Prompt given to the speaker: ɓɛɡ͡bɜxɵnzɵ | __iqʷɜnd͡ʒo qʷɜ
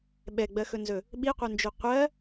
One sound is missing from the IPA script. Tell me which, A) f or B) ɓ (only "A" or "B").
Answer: B